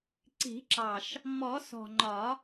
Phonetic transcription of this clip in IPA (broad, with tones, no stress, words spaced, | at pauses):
ǀi̤˨˩˦ǁɑ˨˩ʃ | mɔ˨˩˦sɔ̤˨˩ŋ͡ǃɒ˨˩˦